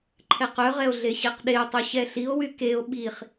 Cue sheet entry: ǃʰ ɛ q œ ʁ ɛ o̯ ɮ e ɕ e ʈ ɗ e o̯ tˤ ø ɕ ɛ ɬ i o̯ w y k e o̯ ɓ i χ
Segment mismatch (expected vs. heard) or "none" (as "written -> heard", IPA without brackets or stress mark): ʈ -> q